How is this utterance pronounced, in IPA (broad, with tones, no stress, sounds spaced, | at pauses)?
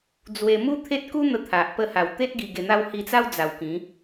d͡z w e˧ m u˦ t̪ʰ e˦ t̚ k u˦ n̪ ə˧ t̪ʰ a˨ ʔ p ə˦ h a˨˩ w t̪ e˦ t̚ ɡ i˧ ɡ e˧ n̪ a˦ w h i˧ t͡s a˦ w d͡z a˨˩ w k ĩ˨˦